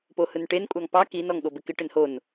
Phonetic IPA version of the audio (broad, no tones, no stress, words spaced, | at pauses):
pohɯnʈen kʷʼɑŋpɑ kin ɔŋɠobɪkɪ ʈɪnhon